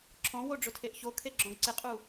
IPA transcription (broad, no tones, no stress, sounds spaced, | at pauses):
ǁʰ ɔ̃ w o ɖ͡ʐ ʊ tʰ e ʔ ç o kʰ e ɡ͡ǁ ɔ̃ ɡ ǀ ɪ qʼ u